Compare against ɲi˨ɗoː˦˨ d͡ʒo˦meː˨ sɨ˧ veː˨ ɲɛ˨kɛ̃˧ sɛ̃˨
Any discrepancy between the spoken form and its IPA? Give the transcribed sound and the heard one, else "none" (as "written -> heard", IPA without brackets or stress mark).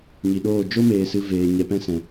k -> p